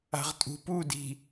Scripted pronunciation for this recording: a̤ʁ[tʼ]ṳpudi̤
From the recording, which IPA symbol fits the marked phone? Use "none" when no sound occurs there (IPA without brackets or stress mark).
tʼ